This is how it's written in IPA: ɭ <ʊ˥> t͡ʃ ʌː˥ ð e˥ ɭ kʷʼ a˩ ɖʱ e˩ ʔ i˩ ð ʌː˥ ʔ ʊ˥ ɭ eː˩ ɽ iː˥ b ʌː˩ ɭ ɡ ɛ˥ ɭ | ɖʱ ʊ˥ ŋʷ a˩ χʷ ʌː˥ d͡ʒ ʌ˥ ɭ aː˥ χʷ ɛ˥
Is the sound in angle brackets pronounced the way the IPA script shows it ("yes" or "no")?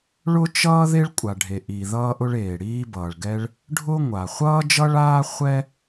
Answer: yes